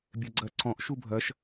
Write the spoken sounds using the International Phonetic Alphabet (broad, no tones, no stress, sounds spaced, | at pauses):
bʲ ɛ ɡ͡ǀ ɐ ǀ ɔ̃ ʔ ʃ u bʱ ɐ ʃ